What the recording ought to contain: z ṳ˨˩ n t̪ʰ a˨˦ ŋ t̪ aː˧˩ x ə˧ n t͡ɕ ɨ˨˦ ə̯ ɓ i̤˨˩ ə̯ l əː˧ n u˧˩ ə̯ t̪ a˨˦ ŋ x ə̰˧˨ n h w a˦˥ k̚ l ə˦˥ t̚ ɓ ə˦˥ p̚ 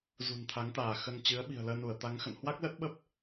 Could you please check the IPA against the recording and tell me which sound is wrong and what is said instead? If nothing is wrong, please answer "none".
none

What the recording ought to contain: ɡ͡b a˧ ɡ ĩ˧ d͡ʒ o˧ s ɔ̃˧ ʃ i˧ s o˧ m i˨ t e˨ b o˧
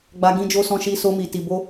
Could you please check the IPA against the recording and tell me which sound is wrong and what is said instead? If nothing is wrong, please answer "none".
e˨ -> i˨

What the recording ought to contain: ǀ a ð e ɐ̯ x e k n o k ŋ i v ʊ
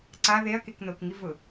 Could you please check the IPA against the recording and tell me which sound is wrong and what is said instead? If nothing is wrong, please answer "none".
x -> k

